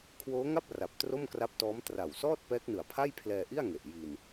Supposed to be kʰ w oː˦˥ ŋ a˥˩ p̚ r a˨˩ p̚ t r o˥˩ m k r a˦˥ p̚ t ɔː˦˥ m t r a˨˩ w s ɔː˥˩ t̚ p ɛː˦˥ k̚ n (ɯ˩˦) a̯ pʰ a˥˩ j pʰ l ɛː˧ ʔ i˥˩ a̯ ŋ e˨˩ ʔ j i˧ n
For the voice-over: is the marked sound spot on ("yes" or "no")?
no